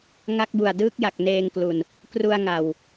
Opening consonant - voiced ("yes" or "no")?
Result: yes